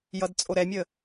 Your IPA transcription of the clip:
jʌdt͡sʼoɾɛmʲə

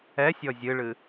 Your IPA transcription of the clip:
ɛsʲɔ zʲɨɭɨ

